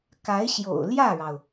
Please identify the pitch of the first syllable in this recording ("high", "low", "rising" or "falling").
rising